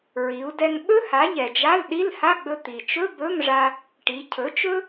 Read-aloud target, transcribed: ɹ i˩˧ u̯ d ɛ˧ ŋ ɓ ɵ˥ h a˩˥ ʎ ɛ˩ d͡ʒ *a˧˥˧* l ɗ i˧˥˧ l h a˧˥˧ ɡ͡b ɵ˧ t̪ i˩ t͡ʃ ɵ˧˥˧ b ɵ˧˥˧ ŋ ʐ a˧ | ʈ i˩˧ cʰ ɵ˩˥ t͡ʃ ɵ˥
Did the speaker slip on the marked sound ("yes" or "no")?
no